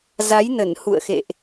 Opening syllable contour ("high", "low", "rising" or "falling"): rising